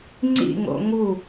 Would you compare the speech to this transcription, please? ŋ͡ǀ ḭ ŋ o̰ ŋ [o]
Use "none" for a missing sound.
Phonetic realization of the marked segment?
u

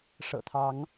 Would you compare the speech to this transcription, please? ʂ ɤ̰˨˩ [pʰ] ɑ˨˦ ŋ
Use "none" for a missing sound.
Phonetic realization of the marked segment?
t̪ʰ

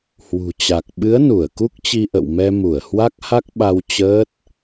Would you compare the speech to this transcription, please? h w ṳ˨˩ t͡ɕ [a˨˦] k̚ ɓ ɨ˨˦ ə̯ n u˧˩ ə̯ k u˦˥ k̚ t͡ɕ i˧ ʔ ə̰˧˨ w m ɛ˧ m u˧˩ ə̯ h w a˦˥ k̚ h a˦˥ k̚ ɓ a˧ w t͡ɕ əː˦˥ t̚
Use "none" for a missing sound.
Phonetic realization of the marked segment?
a˨˩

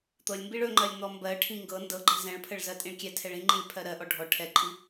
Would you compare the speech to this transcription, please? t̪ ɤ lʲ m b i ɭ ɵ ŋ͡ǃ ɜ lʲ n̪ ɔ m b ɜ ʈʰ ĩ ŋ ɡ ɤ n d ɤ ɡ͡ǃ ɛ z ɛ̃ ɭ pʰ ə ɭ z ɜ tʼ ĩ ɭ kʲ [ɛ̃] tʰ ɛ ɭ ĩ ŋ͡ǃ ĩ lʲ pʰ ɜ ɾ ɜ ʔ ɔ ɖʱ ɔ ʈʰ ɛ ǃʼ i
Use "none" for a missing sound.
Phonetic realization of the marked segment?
ɛ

